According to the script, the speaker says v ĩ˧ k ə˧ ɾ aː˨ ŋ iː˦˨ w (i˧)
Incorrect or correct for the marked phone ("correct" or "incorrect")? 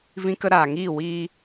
incorrect